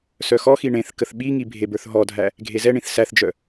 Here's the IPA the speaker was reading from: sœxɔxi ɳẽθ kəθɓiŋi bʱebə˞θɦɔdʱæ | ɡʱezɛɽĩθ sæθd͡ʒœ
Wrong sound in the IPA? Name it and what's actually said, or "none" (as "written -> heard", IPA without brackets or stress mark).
ɽ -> ɳ